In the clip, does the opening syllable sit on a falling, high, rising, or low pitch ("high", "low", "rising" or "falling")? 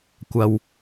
low